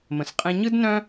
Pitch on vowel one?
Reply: low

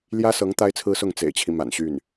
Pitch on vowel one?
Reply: high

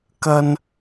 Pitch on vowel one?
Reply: high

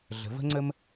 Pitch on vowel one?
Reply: rising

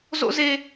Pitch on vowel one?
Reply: high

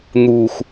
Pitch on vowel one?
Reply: low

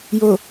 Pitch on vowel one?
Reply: low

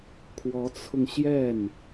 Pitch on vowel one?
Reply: rising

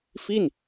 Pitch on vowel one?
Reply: falling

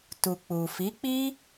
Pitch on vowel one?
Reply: low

